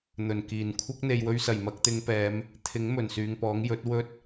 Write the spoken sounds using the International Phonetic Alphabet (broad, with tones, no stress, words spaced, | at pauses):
n̪ɵ˨˩nkiː˨˩n kʷʰɐ˥k̚n̪e˨j wɵ˧ɥsɐ˨˩jmɐ˧k̚t̪ɪ˨˧ŋ pɛː˨˧m | t̪ʰɪ˨˥ŋ mɵ˨˩nsyː˨ŋpɔː˨˥ŋ jɵ˨˥t̚ wɵ˥t̚